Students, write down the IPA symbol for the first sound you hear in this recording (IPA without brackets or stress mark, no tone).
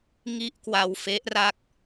ŋ